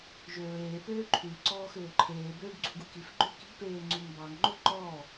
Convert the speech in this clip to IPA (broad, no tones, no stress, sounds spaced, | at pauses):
ʒ ø ɹ eː p øː ǃʰ ʉ ǀ ɔː x øː ǃʰ eː b øː ɖ ɡ͡ǀ u ɡ u k i f ɡ͡ǃ ø k i̤ p eː ŋ͡ǀ u ŋ b ɑ ŋ ŋ͡ǃ o ǃ ɔː